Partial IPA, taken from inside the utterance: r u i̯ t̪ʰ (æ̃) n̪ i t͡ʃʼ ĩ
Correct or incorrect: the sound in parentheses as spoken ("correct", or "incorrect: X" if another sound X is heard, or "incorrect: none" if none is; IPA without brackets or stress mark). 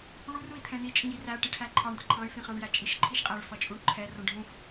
incorrect: ɛ̃